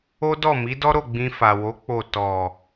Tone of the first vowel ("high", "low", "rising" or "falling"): high